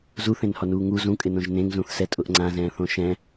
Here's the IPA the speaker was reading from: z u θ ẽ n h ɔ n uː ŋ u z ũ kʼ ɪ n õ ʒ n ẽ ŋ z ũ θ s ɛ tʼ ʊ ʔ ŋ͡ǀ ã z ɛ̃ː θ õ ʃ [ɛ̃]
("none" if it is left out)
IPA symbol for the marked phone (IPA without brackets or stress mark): ɛ̃